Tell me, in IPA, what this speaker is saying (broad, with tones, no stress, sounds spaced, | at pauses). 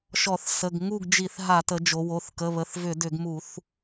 ʃ ɔ˧˩˧ θ s ə˩˧˩ ɡ ŋ u˥˨ ɡ d͡ʒ i˧˩˧ θ ɦ a˧˩˧ t ə˩˧ d͡ʒ o˩˧ w o˩˧˩ θ k ə˩˧˩ β ə˩˧˩ θ v ʏ˧˩˧ d ʏ˧˩˧ ɡ m u˧˩˧ θ